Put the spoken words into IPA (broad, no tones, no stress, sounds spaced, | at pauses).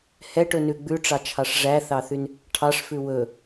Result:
h ɛ ʈ ɵ n ʉ ɡ͡b ʉ ʈ͡ʂ ɑ t͡ʃʰ ɑ ʂ ʐ æ θ ɑ θ y n | ʈʰ ɑ ʂ f ʉ w ɵ